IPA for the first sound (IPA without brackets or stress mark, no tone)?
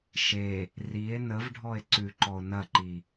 ʃ